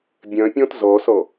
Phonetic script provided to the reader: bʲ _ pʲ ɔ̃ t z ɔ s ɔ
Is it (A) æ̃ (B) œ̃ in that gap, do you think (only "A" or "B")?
B